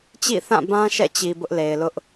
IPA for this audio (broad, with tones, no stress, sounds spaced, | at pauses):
t͡ɕ ḭ˦˨ θ ã˦˨ b ã˦ ʃ ɛ̰˦˨ t͡ɕ i˨ b ʊ˦ ʔ l e˨ ɪ̯ l ʊ˦ ʔ